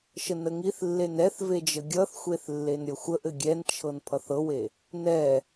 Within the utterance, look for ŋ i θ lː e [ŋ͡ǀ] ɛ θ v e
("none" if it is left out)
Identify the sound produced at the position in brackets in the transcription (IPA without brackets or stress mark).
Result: n